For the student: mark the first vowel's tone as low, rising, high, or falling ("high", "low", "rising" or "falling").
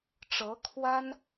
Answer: rising